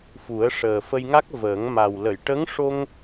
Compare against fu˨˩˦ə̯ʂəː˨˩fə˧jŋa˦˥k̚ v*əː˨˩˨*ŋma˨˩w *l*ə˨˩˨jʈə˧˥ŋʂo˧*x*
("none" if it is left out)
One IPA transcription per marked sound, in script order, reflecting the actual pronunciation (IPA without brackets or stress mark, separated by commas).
əː˨˩˦, l, ŋ